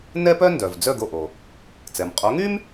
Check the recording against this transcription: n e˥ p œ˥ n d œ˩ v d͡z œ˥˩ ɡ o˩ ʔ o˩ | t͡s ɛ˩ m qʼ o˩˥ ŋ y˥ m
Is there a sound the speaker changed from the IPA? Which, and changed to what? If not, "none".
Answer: e˥ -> ɛ˥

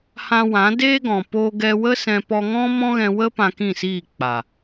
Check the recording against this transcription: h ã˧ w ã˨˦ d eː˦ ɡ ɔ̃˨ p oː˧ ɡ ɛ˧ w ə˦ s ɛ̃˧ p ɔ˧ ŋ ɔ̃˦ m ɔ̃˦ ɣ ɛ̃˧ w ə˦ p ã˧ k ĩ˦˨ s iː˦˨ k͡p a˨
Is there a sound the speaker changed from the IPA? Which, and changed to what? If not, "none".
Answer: none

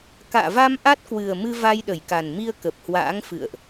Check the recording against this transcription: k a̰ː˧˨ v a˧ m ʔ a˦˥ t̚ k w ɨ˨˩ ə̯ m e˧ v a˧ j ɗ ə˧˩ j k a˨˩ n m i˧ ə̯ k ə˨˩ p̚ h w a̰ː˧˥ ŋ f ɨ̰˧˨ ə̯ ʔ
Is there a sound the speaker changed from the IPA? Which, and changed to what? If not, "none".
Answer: e˧ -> ɨ˧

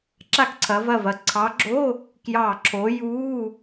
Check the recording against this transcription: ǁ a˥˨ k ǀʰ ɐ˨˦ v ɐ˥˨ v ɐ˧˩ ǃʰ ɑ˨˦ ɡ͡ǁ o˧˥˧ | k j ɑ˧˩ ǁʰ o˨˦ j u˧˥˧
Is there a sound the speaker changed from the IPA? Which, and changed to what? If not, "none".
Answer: ǃʰ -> ǀʰ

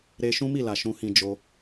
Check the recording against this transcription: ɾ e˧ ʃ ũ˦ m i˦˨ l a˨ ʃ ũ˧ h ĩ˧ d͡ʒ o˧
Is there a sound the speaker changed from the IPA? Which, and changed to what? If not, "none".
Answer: none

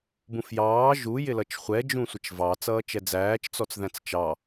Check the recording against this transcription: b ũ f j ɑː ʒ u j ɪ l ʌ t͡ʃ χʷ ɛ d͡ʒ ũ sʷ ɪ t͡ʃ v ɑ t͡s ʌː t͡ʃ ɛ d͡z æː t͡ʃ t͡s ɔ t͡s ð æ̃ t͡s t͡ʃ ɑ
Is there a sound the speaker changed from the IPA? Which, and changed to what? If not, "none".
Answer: none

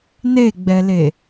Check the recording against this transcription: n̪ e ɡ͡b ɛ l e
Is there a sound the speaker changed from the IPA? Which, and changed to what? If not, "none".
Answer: none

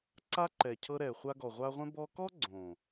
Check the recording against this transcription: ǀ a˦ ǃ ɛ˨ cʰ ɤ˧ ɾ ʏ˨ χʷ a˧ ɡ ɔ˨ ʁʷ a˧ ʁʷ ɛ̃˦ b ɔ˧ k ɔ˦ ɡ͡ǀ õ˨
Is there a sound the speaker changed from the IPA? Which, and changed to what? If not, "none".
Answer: ʏ˨ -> ɛ˨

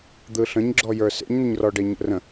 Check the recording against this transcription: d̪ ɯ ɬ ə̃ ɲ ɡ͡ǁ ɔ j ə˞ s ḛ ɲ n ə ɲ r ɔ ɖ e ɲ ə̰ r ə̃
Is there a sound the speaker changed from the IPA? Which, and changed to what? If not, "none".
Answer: none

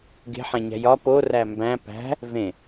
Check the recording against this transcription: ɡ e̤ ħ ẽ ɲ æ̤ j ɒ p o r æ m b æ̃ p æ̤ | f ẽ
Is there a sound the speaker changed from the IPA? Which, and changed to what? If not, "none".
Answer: f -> v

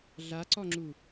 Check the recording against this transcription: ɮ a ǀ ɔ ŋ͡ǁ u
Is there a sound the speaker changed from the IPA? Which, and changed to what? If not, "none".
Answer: none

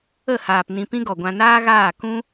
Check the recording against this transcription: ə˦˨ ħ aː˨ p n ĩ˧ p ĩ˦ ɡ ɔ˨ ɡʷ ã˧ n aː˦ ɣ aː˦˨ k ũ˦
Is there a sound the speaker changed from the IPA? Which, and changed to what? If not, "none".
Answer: ħ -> h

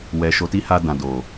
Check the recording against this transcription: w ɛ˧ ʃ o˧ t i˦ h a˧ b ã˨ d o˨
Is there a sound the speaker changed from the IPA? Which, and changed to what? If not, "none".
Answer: b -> d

